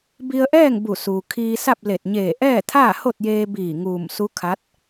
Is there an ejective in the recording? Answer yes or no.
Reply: no